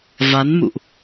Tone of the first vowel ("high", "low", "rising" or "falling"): rising